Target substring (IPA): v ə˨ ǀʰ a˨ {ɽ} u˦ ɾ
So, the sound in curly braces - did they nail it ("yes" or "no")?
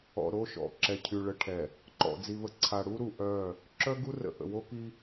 yes